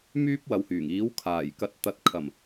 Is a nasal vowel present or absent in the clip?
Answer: absent